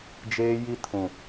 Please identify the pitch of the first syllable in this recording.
high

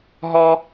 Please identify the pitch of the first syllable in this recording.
high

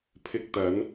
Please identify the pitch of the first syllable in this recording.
low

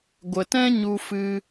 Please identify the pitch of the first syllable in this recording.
low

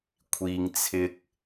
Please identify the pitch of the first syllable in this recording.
low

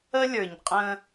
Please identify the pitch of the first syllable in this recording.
high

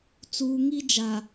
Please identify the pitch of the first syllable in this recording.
low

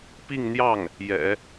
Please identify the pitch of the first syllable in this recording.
falling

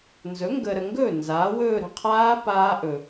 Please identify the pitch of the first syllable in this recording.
rising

